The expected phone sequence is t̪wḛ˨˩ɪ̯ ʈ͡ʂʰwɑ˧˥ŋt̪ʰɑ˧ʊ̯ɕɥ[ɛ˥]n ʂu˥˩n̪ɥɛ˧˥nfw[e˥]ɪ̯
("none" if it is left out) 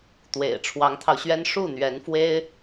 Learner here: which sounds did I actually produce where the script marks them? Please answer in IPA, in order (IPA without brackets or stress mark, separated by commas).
ɛ˥, e˥